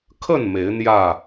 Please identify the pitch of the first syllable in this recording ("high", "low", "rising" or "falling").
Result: falling